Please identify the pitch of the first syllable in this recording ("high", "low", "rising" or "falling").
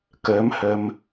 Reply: rising